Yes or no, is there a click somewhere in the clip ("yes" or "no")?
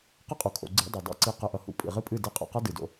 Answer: yes